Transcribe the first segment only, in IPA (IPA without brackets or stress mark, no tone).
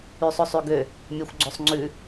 y